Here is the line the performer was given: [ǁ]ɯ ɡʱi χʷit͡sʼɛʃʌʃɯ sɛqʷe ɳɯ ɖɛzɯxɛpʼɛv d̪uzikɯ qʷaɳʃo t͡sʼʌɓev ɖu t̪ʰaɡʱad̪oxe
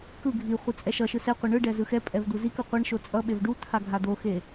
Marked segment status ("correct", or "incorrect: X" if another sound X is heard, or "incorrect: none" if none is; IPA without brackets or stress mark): incorrect: k